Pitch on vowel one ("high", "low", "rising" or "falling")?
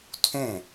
falling